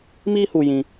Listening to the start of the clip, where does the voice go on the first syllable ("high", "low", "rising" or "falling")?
high